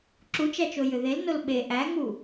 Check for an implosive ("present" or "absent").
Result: present